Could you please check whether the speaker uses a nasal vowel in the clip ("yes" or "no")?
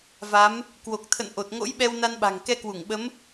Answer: no